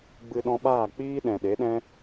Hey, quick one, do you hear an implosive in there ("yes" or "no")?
yes